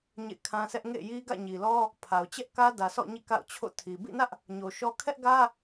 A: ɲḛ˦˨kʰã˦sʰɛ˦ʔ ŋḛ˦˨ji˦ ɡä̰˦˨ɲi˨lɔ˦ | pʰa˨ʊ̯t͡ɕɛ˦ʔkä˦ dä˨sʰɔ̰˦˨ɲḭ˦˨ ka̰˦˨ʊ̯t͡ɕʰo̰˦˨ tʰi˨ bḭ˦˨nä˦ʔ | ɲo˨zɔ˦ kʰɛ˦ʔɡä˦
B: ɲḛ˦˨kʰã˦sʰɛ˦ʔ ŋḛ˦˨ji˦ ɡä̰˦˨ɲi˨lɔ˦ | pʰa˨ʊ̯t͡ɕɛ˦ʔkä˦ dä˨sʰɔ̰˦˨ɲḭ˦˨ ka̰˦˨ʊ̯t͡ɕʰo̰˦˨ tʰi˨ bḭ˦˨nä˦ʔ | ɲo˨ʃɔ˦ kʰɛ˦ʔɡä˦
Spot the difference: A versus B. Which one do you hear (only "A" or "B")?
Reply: B